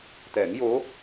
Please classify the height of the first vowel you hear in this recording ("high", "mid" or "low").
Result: mid